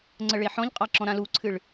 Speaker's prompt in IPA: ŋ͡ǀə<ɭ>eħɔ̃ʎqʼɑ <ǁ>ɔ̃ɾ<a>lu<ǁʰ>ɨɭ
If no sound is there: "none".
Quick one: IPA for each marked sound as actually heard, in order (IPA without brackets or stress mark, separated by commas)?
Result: ɭ, ǁ, ã, ǀʰ